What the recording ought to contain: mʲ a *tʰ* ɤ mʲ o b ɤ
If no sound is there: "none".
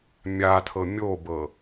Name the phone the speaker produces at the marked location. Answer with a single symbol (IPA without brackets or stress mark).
tʰ